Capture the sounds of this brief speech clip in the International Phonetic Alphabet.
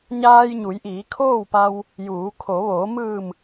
ɲ aː˧ j ɲ u˩˧ j ʔ iː˩˧ kʰ oː˥˨ w p a˧ w | j uː˩˧ kʰ o˩˧ ʋ oː˩˧ m ɯː˧˩ m

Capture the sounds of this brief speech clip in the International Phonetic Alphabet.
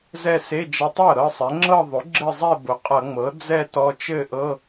z ɛ˥˧ s e˧˥˧ d͡ʒ ʌ˧ tˤ ɤ˥˩ ɾ ɤ˥˧ sˤ ɛ˩˥ ŋ͡ǁ ɤ˥˧ ðˤ ʊ˩˥ ɡ͡ǁ ɘ˥˧ zˤ ɛ˥˧ b ʊ˩˥ qʼ ʌ˧˩˧ ŋ͡m ɤ˩˥ d͡z ɛ˥˧ t ɔ˧ t͡ʃ ɘ˥˧ ʔ ɤ˧˥˧

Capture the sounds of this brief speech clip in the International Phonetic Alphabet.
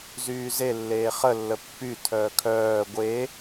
z yː z e lː eː χ ə lː ə pː y tʰ œː kʰ œː ɡʷ e

